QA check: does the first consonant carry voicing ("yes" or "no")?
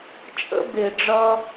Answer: no